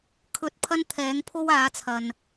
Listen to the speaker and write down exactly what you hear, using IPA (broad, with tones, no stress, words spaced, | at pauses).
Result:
kʰɵ˧t̚ pʰɐ˥n t̪ʰɛː˨˥ŋpʰo˥waː˨˥t͡sʰɐ˨n